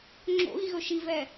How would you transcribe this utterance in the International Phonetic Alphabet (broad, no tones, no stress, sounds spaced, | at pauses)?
ŋ͡ǁ o̰ ɣ i ɣ ɵ ʃ i v ɛ